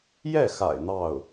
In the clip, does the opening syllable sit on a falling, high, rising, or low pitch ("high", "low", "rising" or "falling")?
falling